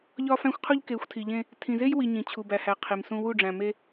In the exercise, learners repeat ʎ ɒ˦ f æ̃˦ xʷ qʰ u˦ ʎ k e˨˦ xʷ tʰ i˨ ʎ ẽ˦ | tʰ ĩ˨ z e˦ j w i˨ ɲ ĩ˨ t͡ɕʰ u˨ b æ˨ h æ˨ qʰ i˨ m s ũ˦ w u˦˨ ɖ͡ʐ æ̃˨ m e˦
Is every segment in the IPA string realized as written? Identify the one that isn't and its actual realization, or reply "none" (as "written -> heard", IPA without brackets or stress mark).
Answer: none